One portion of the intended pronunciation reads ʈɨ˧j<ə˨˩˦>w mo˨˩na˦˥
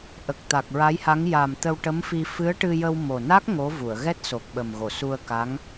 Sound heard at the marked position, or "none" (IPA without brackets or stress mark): ə˧